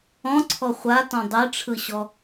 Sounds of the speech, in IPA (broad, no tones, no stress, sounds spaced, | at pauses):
ɔ̃ ǀʰ ɔ χʷ a t ɔ̃ dˤ e ʈ͡ʂʰ ɯ ɕ ɔ